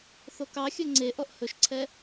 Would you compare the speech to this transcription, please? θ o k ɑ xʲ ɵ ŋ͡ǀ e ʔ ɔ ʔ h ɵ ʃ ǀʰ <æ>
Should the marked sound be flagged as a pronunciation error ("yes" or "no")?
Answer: yes